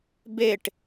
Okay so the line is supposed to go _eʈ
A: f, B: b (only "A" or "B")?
B